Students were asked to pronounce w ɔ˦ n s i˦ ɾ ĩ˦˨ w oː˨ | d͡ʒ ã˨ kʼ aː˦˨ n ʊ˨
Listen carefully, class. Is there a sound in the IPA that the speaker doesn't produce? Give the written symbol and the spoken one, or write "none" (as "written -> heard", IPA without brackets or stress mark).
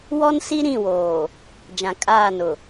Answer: none